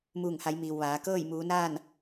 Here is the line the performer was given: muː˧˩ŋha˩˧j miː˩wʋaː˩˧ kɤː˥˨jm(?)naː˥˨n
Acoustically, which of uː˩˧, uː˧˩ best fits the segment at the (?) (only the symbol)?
uː˩˧